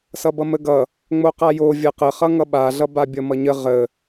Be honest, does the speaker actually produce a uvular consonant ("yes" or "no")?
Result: yes